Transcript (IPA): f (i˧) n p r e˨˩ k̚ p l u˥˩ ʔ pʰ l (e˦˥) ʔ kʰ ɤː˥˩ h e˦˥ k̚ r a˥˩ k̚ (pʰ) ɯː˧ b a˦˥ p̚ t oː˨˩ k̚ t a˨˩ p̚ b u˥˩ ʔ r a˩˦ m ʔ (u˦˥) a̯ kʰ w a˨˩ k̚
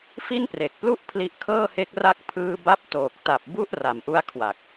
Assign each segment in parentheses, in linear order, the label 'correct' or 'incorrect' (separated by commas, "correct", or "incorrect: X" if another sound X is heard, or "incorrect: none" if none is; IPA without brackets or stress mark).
incorrect: i˥˩, incorrect: i˦˥, correct, correct